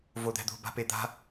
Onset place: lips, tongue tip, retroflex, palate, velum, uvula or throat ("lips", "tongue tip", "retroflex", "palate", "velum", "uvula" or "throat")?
lips